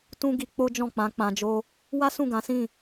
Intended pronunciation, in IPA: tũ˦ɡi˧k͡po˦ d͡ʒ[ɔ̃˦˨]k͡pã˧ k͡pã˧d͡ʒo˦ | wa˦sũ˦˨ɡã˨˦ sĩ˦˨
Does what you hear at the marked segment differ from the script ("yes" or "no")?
no